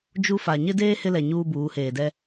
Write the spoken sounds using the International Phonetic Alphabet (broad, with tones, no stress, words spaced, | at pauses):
d͡ʒu˦ fa˨ɲɪ˦deː˦ hɪ˦lɛ˨ ɲuː˦buː˨˦heː˨dɛ˦